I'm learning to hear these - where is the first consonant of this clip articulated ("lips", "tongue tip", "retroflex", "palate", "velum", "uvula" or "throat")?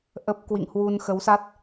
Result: throat